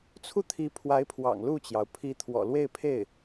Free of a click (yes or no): yes